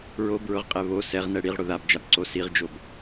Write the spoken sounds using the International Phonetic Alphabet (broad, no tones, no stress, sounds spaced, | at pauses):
ɹ o b ɹ ʊ ʁ qʼ ɛ β o s ɛ ʁ n ɛ ɽ i ʁ ɽ ʊ ð a b d͡ʒ a b ǀ o s i ʁ d͡ʒ o b